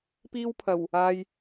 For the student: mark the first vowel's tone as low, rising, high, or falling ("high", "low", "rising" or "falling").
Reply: high